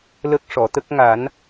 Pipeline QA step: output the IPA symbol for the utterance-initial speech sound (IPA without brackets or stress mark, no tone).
l